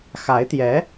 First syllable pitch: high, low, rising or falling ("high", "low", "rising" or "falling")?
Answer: rising